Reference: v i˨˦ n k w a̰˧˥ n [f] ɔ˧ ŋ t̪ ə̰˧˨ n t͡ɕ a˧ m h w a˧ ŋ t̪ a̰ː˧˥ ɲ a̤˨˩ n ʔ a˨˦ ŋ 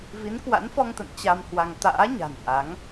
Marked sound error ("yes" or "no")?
no